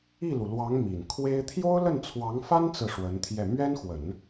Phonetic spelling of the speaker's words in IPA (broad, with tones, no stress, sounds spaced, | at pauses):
i˥˩ l u˩ l w ɑ˧˥ ŋ m i˨˩ n kʰ w e˥ ɪ̯ t̪ʰ j o˥ ʊ̯ l ə˥˩ n t͡sʰ w ɑ˧˥ ŋ f a˥ n t͡s ɹ̩˥˩ ʂ w ə˧˥ n t̪ʰ j ɛ˥˩ m ɥ ɛ˥ n x w ə˨˩˦ n